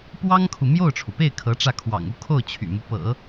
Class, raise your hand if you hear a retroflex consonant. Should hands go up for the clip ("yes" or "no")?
yes